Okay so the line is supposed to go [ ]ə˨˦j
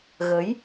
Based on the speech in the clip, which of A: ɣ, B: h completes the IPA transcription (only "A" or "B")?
A